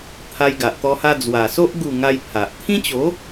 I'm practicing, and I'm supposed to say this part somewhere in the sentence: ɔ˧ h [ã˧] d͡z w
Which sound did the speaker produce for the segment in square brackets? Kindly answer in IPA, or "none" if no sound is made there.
a˧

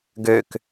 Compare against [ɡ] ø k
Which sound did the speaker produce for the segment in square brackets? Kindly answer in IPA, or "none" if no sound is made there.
ɡ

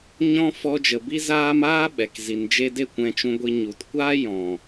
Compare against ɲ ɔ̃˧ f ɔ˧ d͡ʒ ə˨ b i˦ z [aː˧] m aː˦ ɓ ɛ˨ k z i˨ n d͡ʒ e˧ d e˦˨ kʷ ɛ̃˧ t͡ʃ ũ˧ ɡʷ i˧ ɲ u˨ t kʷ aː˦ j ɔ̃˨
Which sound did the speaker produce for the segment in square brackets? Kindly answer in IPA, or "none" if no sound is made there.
aː˦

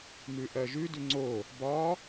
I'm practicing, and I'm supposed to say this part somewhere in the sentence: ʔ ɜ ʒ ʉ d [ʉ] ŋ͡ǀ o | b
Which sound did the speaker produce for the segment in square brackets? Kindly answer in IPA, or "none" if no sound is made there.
ʉ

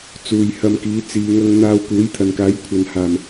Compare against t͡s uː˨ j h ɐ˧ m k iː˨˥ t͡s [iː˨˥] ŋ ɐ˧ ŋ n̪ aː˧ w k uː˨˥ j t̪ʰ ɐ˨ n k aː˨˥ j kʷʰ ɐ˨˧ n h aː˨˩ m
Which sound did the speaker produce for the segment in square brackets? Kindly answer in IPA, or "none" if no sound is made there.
iː˨˧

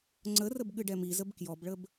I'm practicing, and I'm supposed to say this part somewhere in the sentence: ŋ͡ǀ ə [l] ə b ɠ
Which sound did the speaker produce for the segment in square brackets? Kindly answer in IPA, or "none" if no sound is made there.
r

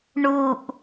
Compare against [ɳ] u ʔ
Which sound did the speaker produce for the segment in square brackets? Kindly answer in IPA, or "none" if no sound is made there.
ɳ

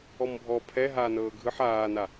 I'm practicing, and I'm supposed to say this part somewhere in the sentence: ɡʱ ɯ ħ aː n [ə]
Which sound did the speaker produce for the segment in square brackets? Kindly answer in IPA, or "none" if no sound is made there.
a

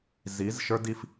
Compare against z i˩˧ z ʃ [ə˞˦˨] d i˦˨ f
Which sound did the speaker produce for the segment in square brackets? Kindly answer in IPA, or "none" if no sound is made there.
ə˞˦˥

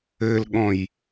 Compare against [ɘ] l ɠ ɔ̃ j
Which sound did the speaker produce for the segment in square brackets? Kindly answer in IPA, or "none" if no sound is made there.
ɘ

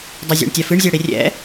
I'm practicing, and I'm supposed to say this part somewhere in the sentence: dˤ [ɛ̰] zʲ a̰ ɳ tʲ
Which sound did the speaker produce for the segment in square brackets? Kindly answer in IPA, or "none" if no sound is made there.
ɛ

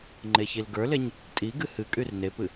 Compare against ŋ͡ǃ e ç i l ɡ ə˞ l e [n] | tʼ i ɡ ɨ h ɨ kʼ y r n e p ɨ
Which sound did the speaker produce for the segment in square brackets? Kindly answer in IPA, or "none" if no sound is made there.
ɲ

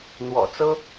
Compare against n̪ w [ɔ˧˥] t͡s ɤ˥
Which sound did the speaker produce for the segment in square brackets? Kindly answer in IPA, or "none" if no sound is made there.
ɔ̰˨˩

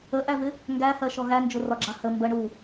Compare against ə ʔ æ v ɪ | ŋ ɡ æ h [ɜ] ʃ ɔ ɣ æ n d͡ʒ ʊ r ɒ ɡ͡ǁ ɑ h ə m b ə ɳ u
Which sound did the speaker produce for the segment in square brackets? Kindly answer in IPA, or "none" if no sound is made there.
ɜ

